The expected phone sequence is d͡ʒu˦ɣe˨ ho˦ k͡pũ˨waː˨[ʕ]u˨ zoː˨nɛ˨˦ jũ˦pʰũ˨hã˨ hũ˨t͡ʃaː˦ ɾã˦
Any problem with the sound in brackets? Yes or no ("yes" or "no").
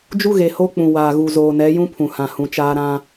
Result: yes